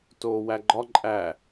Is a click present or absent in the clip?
present